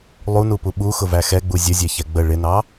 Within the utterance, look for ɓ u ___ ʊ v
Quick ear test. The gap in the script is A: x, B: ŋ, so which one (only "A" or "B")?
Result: A